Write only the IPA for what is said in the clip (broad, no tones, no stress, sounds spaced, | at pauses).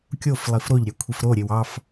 kʲ o f lˠ i f ɾ o ʎ ɾʲ ɑ kʷʰ i f ɾ o ɾʲ e w ɑ f